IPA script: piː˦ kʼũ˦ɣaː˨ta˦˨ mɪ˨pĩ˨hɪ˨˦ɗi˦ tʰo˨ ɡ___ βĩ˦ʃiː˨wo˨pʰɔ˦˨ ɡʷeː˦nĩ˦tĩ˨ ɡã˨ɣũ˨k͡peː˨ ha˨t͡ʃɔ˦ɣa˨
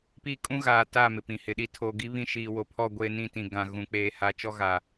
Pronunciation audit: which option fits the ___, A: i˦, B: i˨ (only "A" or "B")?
A